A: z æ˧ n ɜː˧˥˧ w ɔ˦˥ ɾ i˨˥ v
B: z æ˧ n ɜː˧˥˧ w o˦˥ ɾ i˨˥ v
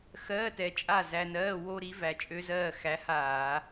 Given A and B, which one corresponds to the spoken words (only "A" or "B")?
B